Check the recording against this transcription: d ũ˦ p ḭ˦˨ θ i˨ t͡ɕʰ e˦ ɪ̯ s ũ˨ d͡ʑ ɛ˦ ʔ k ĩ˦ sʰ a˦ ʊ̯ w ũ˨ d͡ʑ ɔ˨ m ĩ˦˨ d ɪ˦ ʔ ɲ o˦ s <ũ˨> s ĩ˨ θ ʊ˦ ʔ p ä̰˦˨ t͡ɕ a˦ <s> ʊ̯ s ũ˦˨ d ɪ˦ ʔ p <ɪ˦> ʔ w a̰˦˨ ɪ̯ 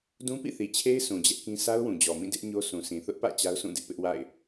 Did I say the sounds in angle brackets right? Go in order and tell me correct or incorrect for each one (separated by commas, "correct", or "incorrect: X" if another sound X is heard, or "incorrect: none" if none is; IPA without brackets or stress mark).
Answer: correct, incorrect: none, correct